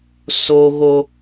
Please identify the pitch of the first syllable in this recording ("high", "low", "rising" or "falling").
high